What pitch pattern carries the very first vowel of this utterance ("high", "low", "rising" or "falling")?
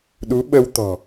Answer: rising